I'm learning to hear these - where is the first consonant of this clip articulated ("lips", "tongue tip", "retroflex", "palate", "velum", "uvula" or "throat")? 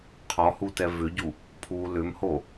uvula